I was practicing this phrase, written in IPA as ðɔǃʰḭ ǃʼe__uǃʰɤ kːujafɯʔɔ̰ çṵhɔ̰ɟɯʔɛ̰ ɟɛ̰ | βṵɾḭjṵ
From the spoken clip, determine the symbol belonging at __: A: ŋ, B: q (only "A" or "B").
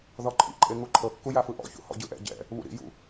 A